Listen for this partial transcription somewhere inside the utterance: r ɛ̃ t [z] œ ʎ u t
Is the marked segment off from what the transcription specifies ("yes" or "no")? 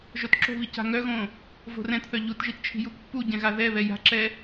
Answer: yes